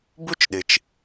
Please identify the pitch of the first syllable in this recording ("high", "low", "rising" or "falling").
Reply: high